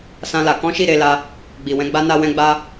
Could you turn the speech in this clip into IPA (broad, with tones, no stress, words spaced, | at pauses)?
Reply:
sã˦la˧ kɔ̃˦ʃi˦˨ɾe˧la˧ | ɡ͡bi˨wɛ̃˧ ɡ͡ba˦ na˧wɛ̃˧ɡ͡ba˧